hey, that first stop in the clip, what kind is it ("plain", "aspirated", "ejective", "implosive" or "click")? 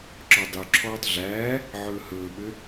click